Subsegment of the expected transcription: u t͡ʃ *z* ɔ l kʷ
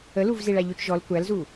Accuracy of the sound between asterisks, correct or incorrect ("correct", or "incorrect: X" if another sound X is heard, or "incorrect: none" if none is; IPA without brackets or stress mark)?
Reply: incorrect: ʒ